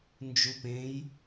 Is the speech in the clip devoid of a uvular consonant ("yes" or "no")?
yes